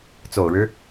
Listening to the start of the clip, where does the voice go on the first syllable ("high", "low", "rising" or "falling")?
low